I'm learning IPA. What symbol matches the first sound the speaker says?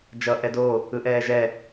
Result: d͡ʒ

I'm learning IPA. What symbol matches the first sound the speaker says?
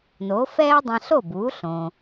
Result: n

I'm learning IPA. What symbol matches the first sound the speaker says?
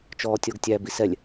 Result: t͡ʃ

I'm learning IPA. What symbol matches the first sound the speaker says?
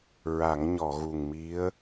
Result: ɹ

